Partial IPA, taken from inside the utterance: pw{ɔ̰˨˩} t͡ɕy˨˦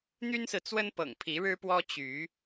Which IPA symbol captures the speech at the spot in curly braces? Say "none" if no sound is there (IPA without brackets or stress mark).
ɔ˦